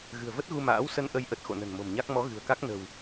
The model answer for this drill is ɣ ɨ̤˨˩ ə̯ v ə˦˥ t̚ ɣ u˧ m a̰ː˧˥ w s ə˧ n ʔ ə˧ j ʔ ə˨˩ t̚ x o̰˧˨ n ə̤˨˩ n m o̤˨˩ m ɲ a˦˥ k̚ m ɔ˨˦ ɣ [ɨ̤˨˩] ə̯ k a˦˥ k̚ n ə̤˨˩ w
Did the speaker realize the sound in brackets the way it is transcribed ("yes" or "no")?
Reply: yes